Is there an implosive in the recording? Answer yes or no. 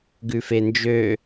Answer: no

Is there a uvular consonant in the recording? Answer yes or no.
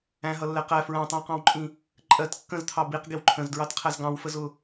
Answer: yes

